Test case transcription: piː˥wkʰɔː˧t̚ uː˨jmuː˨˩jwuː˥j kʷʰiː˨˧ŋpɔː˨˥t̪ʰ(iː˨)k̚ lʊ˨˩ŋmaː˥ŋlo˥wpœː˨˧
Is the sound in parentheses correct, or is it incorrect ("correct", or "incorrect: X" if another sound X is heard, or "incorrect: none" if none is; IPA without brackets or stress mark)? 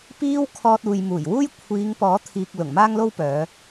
correct